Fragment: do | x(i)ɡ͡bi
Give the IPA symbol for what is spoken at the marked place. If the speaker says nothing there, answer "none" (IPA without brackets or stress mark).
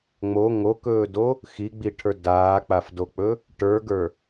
i